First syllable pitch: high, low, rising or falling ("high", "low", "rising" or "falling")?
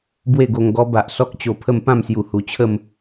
falling